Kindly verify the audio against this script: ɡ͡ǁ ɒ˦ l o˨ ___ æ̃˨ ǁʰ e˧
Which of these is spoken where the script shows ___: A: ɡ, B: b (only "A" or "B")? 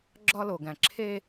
A